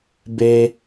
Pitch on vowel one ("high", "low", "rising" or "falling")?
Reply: high